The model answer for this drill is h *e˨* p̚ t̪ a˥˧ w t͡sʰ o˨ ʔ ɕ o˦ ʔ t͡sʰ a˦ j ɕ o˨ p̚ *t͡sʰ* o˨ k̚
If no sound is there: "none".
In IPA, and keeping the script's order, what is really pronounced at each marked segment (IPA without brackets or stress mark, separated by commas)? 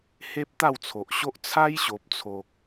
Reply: e˦, t͡sʰ